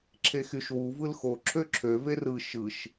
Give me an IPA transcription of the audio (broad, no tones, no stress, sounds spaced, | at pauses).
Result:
ǁʰ e x y ʃ w u v ɯ l x o ǁʰ ø ǁʰ ø v e r ɯ ʃ ɯ ʃ